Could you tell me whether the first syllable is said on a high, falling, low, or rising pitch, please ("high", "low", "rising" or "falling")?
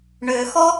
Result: low